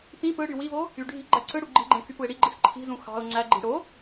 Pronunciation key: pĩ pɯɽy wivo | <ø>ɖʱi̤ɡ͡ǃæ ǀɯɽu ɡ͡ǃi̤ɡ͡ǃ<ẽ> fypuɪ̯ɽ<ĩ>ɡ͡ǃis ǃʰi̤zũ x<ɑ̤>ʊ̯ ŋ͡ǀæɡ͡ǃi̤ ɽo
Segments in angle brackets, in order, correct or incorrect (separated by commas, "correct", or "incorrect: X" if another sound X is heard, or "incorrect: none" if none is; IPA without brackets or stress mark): incorrect: y, correct, incorrect: i, correct